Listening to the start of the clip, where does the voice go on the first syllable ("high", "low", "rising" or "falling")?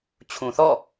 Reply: low